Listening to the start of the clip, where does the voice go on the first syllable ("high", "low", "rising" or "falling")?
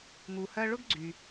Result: low